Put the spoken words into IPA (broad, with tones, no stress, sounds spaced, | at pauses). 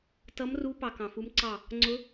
t ʌ˦˥ m r u˦˥ p ɑ˧ k ɑ̃˧ f u˦˥ m ǀ ɑ˥˧ | ŋ͡ǀ ʊ˦˥